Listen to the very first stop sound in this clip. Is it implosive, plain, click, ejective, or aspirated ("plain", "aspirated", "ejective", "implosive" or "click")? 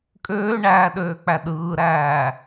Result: ejective